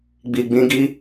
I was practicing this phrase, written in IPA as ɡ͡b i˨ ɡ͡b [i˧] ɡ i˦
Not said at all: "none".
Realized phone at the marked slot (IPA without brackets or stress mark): ĩ˧